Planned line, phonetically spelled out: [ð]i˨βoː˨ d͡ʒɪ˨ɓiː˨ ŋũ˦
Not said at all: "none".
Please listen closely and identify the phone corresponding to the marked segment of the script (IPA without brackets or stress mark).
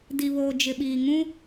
d